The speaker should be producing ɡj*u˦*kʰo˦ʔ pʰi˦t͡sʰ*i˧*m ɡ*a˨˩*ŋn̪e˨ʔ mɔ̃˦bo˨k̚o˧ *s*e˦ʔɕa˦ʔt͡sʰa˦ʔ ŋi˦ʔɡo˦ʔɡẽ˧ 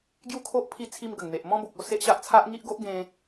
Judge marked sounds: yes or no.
no, no, no, yes

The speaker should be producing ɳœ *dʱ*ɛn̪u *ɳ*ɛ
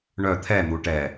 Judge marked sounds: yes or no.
no, no

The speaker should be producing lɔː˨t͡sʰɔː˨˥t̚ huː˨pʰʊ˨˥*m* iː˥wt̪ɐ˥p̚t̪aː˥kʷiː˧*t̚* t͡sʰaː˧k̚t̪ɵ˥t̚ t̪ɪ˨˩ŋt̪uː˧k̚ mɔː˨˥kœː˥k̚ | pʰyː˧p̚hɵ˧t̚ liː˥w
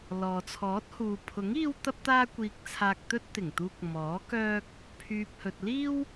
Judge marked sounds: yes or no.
no, no

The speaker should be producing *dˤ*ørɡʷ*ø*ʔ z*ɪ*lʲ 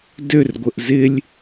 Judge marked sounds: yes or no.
no, no, yes

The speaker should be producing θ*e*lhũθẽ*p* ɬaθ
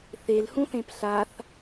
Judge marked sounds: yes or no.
yes, yes

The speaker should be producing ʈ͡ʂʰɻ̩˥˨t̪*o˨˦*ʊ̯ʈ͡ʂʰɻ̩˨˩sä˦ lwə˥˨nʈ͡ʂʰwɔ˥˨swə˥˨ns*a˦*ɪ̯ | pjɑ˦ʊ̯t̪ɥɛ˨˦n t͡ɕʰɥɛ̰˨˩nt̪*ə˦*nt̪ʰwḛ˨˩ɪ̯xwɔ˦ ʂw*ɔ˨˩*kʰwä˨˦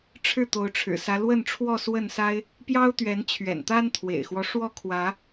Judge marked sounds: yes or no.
yes, yes, no, no

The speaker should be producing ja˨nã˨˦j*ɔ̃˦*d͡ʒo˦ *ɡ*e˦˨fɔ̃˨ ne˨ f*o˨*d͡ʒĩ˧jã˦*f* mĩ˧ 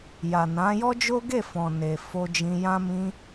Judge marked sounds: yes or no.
no, yes, no, no

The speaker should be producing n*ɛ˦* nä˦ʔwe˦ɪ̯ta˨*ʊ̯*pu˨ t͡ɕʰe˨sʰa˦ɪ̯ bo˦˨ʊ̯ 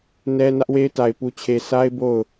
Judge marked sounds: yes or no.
yes, no

